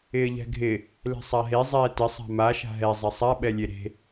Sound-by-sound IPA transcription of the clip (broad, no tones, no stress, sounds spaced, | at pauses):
ɪː ʎ ɛ̤ ɡʱ ɪ | l e̤ sˤ a ɦ e zˤ ɛː t ɪ sˤ a̤ m a ʃ a̤ ɦ ɛ zˤ ɛ sˤ a ɓ ɛ lʲ e ɾ e̤